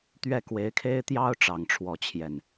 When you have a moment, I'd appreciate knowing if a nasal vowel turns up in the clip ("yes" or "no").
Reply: no